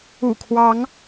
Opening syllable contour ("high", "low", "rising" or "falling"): low